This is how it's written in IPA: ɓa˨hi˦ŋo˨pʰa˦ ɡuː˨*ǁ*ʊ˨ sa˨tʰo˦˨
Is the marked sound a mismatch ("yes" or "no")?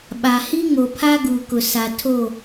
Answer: yes